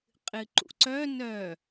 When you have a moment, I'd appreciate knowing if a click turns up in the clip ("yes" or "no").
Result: yes